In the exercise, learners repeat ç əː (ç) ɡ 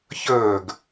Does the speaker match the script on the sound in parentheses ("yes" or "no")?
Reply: no